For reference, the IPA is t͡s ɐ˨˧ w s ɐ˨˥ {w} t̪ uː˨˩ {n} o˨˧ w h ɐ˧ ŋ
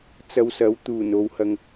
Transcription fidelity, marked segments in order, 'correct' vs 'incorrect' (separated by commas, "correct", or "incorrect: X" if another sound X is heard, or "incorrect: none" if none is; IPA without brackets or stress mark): correct, correct